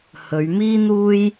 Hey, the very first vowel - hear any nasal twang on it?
no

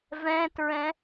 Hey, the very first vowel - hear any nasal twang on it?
yes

